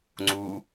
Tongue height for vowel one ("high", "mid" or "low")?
high